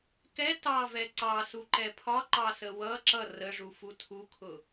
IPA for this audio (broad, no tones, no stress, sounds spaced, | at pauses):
k ɛ t ɑ v ɛ ǀ ɑ s u ǃ ɛ pʰ ɒ ǃ ɑ s ə w ʌ ǁ ʌ r ə ʐ u f u tʰ u kʰ ʊ